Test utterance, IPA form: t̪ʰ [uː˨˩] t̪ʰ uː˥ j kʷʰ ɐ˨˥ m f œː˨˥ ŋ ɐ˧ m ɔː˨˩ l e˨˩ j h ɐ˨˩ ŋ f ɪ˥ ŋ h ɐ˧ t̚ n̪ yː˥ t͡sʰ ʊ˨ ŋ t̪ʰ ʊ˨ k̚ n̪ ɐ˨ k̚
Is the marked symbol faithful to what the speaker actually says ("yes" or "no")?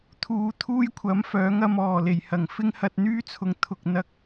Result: no